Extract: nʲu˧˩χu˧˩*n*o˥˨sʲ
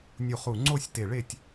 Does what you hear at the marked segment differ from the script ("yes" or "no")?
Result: yes